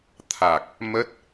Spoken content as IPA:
t̪ʰ a˨˩ k̚ | m ə˦˥ t̚

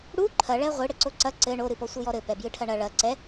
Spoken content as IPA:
ɽ u ǃʰ ɐ ɭ ɛ ʁʷ ɨ ɽ ɘ ǀ o ǀ ɐ ǀ ɘ ɳ o ɾ ɨ p ɔ sʷ ɨ j ɔ ɾ ɘ p ɛ b j ɨ ʈʰ ɐ ɳ ɐ ɭ ɐ ǀ ɛ

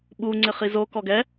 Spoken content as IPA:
ɓ u ŋ͡ǀ ɪ χ i z o k ɔ ɡ ɛ

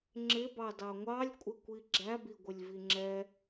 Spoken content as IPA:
ŋ͡ǁ ɪ b ɑ d ɑ ŋʷ ɑ lʲ kʷʼ ɪ kʷ i ɡ͡ǁ æ b i ɡʷ ɪ lʲ v i ŋ͡ǁ ɛ

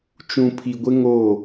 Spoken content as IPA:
t͡ʃ ũ˨ pʰ i˨ ɡʷ ɪ˦ ŋ o˦˨

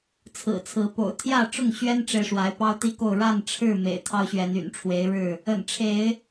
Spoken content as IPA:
t͡sʰ ɹ̩˨˩ t͡sʰ ɹ̩˨˦ p o̰˨˩ ʊ̯ t̪ʰ j ä˥˨ ʈ͡ʂ ʊ˥˨ ŋ ɕ ɥ ɛ˦ n ʈ͡ʂ e˨ ɪ̯ ʂ w a˨˦ ɪ̯ p ɑ˦ ʊ̯ t̪ i˦ k o˥˨ ʊ̯ ɻ a˥˨ n ʈ͡ʂʰ ɻ̩˥˨ m ḛ˨˩ ɪ̯ t̪ʰ ɑ˦ ʊ̯ ɕ ɥ ɛ˨˦ n y̰˨˩ n ʈ͡ʂʰ w e˨˦ ɪ̯ ɻ ɻ̩˥˨ | ə̰˨˩ n ʈ͡ʂʰ e˨˦ ɪ̯

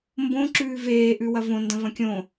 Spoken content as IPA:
m b õ ǁ ʉː v eː ʔ ʉ w ɐ v õ n d ɐ̃ v ɐ̃ kʲ õ

